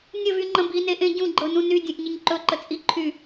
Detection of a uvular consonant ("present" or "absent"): absent